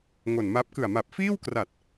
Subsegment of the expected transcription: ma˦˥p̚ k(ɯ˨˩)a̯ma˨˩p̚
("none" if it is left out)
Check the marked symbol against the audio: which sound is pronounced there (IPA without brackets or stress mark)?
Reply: ɯ˨˩